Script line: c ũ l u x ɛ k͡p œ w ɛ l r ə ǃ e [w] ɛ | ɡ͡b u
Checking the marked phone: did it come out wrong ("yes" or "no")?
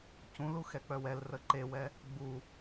no